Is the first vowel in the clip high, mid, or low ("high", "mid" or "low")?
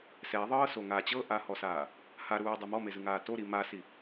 mid